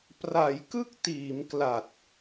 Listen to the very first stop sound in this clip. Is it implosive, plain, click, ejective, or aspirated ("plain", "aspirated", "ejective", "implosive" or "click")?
plain